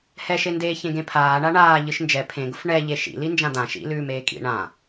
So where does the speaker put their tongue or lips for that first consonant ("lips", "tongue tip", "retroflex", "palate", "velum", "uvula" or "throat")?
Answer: throat